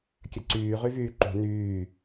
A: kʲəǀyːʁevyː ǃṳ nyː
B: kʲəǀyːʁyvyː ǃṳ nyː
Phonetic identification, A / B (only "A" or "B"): B